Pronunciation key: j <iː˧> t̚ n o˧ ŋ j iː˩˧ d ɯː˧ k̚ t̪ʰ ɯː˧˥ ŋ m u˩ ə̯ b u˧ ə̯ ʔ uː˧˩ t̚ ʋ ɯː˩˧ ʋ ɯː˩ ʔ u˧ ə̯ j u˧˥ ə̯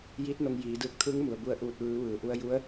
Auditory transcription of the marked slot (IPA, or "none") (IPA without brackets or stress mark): iː˧˥